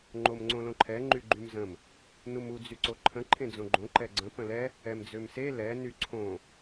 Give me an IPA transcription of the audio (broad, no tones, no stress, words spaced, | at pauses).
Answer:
ŋ͡ǃomŋ͡ǀõlõǃʰɛ ŋ͡ǃyɡ͡ǃymzə̃m | numu d͡zyǀoǃʰə̃ ǃʰẽd͡zõɡ͡ǃõ ǃɛɡ͡ǀə̃ pə̃lɛ | ɛmd͡zømse lɛ nyǀʰõ